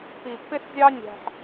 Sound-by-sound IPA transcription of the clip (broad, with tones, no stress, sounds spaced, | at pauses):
p i˨ pː ɪ˦ s zʲ ɑ˦ nʲ æ̤˧ ħ